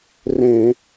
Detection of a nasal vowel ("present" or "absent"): present